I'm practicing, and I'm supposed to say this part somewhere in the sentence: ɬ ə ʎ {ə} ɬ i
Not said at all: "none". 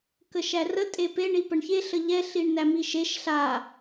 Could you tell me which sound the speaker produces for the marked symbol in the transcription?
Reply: ɛ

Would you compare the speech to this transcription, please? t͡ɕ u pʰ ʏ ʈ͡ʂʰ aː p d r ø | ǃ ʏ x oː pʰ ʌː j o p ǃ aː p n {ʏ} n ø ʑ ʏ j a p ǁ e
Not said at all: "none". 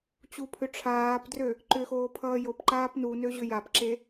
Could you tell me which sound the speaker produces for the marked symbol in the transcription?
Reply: u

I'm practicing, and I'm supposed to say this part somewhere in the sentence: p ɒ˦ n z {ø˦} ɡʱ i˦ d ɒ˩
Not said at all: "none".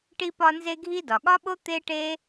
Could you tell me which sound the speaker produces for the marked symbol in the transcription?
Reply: e˦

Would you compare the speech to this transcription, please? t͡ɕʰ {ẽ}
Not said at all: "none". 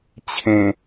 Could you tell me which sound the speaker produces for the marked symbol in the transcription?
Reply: ẽ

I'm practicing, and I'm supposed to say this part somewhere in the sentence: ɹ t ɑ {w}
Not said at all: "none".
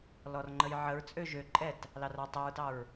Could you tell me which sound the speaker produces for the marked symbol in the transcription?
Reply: ɹ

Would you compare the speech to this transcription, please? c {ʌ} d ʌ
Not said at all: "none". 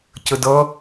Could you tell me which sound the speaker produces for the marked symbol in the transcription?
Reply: ə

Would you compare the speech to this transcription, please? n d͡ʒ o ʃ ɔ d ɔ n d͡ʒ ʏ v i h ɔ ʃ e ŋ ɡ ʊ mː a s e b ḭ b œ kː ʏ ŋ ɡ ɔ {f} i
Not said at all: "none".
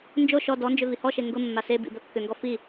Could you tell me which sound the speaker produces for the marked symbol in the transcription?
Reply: f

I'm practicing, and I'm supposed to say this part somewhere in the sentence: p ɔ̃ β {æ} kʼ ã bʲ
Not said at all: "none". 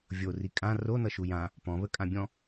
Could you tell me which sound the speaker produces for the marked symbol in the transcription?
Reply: ə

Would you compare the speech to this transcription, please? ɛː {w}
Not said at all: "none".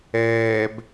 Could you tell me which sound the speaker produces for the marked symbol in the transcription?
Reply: b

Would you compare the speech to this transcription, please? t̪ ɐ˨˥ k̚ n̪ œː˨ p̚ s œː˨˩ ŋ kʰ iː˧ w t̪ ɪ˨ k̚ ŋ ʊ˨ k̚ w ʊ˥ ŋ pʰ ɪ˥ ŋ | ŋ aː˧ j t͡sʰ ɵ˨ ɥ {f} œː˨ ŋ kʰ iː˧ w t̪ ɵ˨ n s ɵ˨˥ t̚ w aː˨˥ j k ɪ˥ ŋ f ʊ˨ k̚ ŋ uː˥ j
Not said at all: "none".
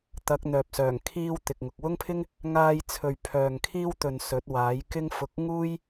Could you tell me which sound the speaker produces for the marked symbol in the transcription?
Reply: pʰ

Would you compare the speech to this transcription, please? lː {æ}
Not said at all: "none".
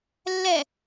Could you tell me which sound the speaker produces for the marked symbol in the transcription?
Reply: ɛ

